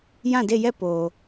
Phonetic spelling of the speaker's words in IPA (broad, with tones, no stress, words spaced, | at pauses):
jã˦˨de˦˨jɛ˦˨ po˨